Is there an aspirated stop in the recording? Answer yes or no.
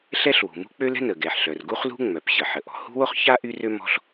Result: no